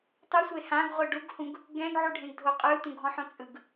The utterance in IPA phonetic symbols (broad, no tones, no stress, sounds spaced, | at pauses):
tˤ u sʷ e h ã ɡ ʁʷ ɯ ɖ u ɡ h ũ ɡ | ɡ ɛ̃ ɡ ʕ u ɖʱ ẽ ɡ dʱ o qʼ ɯ t ũ ɡʱ ɔ̃ ħ õ t͡sʼ ɯ ɡ